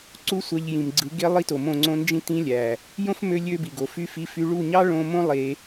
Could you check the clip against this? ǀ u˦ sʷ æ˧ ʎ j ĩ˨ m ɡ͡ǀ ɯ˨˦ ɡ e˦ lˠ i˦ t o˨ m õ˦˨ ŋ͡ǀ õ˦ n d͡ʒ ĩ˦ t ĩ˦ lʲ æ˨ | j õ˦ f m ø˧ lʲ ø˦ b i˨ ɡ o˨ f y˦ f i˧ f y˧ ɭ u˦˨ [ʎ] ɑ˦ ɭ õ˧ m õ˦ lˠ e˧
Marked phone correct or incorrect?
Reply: incorrect